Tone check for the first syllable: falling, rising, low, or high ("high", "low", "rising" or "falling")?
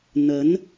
rising